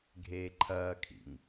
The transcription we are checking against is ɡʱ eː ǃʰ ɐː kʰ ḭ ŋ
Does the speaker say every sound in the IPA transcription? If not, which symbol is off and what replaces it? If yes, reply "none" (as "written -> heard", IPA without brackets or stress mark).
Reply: none